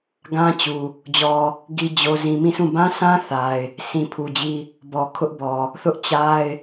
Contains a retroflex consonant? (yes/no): no